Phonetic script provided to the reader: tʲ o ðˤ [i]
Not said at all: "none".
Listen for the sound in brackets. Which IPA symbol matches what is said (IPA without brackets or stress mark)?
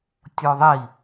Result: i